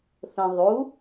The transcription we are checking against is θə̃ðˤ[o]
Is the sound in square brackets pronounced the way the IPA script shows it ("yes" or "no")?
no